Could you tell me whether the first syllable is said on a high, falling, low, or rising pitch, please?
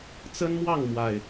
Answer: high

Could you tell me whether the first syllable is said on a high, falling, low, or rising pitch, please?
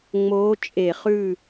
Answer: rising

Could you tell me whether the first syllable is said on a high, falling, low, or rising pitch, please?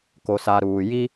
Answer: low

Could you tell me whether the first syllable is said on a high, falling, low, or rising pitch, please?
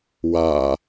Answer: low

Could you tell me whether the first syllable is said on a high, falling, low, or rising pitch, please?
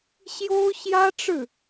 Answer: high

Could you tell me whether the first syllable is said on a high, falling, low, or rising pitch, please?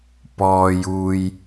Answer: low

